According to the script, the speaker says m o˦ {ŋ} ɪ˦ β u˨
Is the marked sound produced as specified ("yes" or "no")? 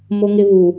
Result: yes